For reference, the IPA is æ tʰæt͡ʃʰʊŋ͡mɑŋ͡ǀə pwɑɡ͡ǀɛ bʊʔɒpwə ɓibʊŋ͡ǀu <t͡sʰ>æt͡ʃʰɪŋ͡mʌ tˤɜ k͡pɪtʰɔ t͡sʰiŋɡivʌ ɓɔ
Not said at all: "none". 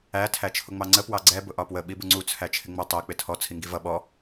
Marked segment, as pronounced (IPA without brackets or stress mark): t͡sʰ